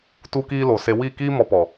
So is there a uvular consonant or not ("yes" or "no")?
no